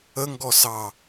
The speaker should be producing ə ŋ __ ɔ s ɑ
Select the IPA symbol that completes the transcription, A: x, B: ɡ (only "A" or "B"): B